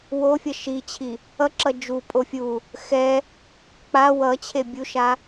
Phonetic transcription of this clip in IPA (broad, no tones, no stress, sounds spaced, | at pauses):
w o fʲ ʌ ʃ i t͡ɕʰ i | ʌ ǁ ʌ d͡ʒ u pʼ o fʲ u | x ɛ | k͡p a w ʌ t͡ɕʰ e bʲ u ʃ a